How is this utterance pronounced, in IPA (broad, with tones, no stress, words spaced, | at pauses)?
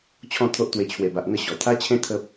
t͡ɕʰɔ̃˥˧t̪ʰo˦ʔt̪we˧ t͡ɕʰwe˨˩ba˨ʔ n̪ə˥˧ɕɔ˨˩ t̪ʰa˦t͡ɕʰẽ˦ t̪ʰə˦p̚